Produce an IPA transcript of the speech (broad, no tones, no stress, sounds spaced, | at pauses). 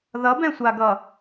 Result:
ð ʌ b ɛ̃ sʷ a ɡ ʌ